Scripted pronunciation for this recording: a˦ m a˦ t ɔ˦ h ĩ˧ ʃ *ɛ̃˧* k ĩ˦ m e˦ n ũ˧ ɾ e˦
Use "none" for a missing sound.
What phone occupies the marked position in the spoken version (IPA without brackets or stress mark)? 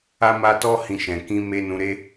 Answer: ɛ̃˧